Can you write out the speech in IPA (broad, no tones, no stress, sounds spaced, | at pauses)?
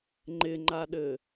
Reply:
ŋ͡ǃ ɪ ŋ͡ǃ a ɗ ɘ